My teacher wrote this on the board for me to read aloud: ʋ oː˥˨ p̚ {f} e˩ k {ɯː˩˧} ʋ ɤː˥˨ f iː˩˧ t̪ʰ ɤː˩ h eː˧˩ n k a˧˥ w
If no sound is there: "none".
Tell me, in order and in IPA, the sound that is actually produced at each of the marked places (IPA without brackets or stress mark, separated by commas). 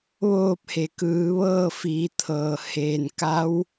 h, ɯː˩˧